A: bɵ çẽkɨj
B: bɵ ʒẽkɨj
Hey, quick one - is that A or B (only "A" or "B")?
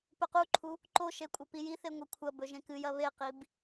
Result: B